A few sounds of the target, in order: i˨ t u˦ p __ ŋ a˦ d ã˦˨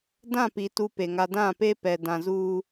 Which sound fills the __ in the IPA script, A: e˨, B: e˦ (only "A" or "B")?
A